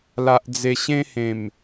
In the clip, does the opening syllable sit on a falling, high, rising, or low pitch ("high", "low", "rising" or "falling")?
low